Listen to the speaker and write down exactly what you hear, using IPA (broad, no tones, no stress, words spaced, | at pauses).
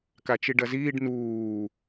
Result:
kat͡ʃiɖɐziːɖ nuː